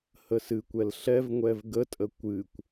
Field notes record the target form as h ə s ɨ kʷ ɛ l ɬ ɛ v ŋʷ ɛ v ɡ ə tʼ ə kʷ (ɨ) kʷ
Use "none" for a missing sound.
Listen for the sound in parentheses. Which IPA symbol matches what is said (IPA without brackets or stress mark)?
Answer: ɨ